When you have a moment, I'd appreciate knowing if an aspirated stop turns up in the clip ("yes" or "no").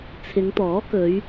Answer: yes